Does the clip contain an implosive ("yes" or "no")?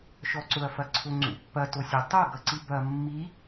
no